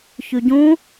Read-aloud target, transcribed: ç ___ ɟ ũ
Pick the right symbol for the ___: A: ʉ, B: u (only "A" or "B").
A